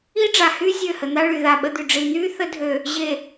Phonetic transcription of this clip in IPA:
i˦ ɖ͡ʐ a˨ h yː˦ zʲ ø˦˨ h ə˨ n̪ a˦ ɭ y˨ ð a˦˨ ɓ ə˦ d̪ y˨ ɖ͡ʐ i˨ n̪ yː˦ θ ə˦ dʱ ø˨ | ʑ e˨

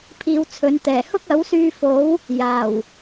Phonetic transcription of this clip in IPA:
pʰ iː˧ w t͡sʰ ɵ˨˧ n t̪ ɛː˨˩ h ʊ˥ k̚ ɐ˨˥ w s yː˧ f o˨˥ w | j aː˨˩ w

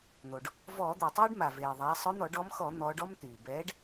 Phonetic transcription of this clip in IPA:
n̪ o˩ ɖ | v ɔː˧˩˧ d̪ eː˩ tˤ oː˦ ɖ m a˩ v eː˩ ðˤ aː˩˧ sˤ ɵ˨˥ n̪ ɔ˧˩˧ ɖ ɔ˨˥ m x ɔ˧˩˧ n̪ ɔː˩˧ ɖ ɔ˦ m t̪ yː˩ b ɛː˨˥ ɖ

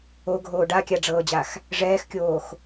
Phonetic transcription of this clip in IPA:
o ɡʱ oː ɖ a kʲ a ɖ͡ʐ ɤː d͡ʑ a x | ʐ ɛː x kʲ oː x

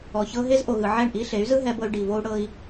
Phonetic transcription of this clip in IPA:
ɔ˨ ç ɤ˧ ɦ e˦ z ʔ o˨ ɣ ɯ˨ ʕ ɛ˦˨ ɳ ʔ i˦ ɬ e˨˦ y̯ z ɯ˦ ɦ ɛ˧ b ɤ˧ y̯ ɖ i˨ v o˧ u̯ ɽ ɤ˧ i̯

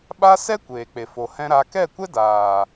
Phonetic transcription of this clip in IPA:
ɓ a˦ s ɛ˦ kʷ eː˨ k͡p e˨ f o˨ h ɛ̃˦ ɾ a˧ k ɛ˦˨ kʷ ɛ˦ d aː˨

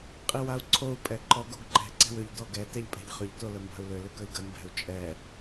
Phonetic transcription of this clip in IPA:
qʼ i w a u̯ ǀʰ o u̯ pʼ ɛ ǃ ɔ ɡ o ɡ ǃ ɛ̤ ǀ ɛ̤ w ʏ ʎ d ɔ ɡ ɛ t ɛ ʎ pʼ ɛ̤ ʎ χ ʏ ʎ t o l ə m b a̤ u̯ l ʏ l ʏ k ə i̯ ɡ ə m b ɛ̤ u̯ t͡ʃʼ ɛ

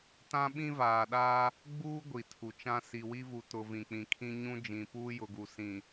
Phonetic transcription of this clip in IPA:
t ã˦ ɓ ĩ˦ v aː˨ ɗ aː˦ | ɡ͡b uː˦ ɡʷ i˨ tʰ u˨ t͡ʃ ã˦ s i˨ w i˦ v u˨ t ʊ˨ v ĩ˨ k͡p ĩ˨ kʰ ĩ˦ ɲ ũ˦ d͡ʒ ĩ˨ p uː˦ j ʊ˨ ɡ u˨ s ĩ˨

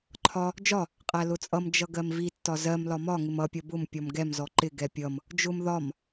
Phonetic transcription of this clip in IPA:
ǃʰ ɒ | d͡ʒ ɒ | qʼ æ l ʊ t͡sʼ ʌ m d͡ʒ ʌ ɡ ɜ m v i tː ɒ z ɜ m l ɒ m ɒ ŋ ɪ m ʌ pʲ ʌ b ʊ m pʲ ɔ m ɡ ɛ m z ɔ ǃ ɪ ɡ ɛ pʲ ʌ m | d͡ʒ ʊ m ð ɒ m

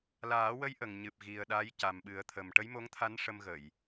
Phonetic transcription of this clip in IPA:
l aː˨˩˦ w ə˧˥ j ʔ ə˨˩ ŋ ɲ ɨ˨˩ p̚ ɣ i˨˩ ə̯ ɗ aː˧˥ j c a˨˩ m ɓ ɨ˨˩˦ ə̯ t̪ʰ ə˨˩ m ʈ ə˧˥ j m o˧˥ ŋ t̪ʰ a˧˥ n ʂ ə˧ m ɣ ə˨˩˨ j

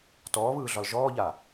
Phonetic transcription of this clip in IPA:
t ɔː β ɯː ɮ ɒ l ʒ ɔː ʎ a

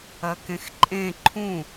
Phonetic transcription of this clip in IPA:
ɐ k ẽ x ǃʼ ẽ ǃʰ ũ

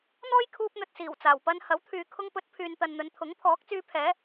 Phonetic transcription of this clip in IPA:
n̪ ɔː˥ j kʰ uː˧ p̚ n̪ ɵ˨ t̚ s iː˨˩ w t͡s aː˨˩ w p ɐ˥ n h ɐ˨˥ w t̪ʰ yː˨ kʰ ʊ˧ ŋ p ɵ˨˥ t̚ pʰ yː˨ n t̪ ɐ˨ n n̪ ɵ˨˧ n t̪ʰ ʊ˨˥ ŋ pʰ ɔː˨˥ k̚ t͡s yː˧ pʰ ɛː˨˥

